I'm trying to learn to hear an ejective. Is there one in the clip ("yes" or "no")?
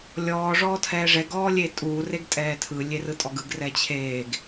yes